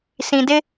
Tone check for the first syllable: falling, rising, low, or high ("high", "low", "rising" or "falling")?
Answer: low